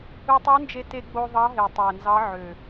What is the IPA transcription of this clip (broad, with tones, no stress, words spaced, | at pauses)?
ɯ˧tˤø˧˥nd͡ʒe˧te˧ ɡ͡bo˧ ðˤɑ˧˥ ɦe˨˩tˤæ˨˩nzɑ˧˥ ʕø˨˩